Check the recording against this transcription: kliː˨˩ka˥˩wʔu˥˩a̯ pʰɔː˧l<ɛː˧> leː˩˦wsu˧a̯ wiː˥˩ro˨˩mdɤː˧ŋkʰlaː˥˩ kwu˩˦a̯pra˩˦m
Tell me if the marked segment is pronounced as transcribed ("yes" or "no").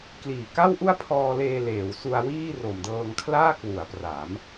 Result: no